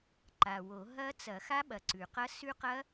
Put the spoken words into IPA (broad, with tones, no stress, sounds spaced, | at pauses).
ǃ a˨˩ w o˨˩˦ ɦ ɐ˦˥ t͡s ɐ˨˩˦ x a˦˥ ɓ ɐ˨˩ ǀ ʉ˨˩ q ɐ˦˥ s ʉ˦˥ q ɐ˦˥